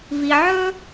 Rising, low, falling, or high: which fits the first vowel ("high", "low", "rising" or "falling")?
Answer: low